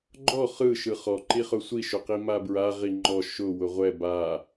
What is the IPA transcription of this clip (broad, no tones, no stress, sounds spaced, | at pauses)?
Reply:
ɡ͡ǃ ɔ χ ɯ ʃ ɯ χ ɔ ǃ i χ ʊ sʷ i ʃ ʊ q i m a b ɹ a ʁ i ŋ͡ǃ ɔ ʃ ʊ w ʊ ʁʷ ɛ b a